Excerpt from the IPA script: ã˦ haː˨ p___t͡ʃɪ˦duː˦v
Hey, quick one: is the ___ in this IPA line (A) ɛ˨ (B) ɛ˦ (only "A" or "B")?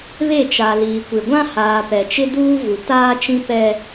A